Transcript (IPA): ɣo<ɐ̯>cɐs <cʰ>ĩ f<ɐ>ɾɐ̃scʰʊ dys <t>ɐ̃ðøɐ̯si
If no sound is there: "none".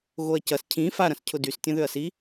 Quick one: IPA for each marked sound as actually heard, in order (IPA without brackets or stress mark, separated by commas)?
ɐ̯, cʰ, a, tʲ